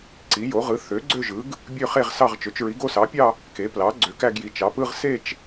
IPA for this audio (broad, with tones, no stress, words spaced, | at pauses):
ǀi˩˥jo˩˥ʁɯ˩˥ θø˩˥ ɡ͡ǀø˥˧ʒɯ˩˥ɡ | bʲø˥˧χe˥˧ʁsɑ˥˧ʁt͡ʃø˩˥t͡ʃ ɹi˩˥ɡo˥˧sɑ˩˥pʲɑ˥˧ | ke˩˥ plɑ˩˥ ɡ͡ǀø˩˥kæ˥˧ɡji˩˥ t͡ʃɑ˩˥p ɯ˥˧ʁ se˥˧t͡ʃ